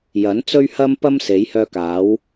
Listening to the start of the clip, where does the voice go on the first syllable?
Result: rising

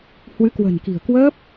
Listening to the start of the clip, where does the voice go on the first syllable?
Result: rising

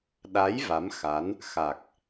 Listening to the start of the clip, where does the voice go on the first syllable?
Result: rising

